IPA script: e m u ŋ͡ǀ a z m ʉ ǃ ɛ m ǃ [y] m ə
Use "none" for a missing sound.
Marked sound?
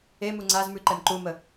u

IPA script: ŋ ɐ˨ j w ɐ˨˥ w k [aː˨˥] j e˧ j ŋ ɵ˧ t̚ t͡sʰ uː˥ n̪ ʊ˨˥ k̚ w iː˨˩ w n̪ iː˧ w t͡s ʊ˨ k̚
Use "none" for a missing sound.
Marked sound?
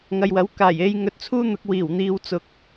aː˨˩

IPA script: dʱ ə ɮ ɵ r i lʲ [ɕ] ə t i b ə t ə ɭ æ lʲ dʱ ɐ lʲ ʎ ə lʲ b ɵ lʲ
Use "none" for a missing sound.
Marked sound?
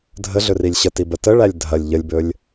ɕ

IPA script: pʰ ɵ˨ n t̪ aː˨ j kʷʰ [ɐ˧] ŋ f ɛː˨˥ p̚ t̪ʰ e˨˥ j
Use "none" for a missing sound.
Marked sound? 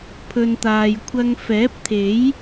ɐ˧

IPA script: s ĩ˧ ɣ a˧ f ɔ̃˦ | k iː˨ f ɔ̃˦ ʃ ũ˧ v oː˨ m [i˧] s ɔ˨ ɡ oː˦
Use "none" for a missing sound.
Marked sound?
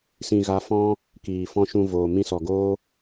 ĩ˧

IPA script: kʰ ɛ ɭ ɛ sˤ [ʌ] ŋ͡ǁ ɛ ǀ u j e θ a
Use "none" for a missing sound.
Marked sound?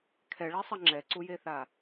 ʌ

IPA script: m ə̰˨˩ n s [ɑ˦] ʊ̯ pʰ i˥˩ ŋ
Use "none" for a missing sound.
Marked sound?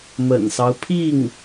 ɑ˦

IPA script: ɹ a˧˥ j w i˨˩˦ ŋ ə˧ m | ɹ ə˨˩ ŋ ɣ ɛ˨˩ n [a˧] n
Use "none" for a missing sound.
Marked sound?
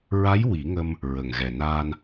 aː˧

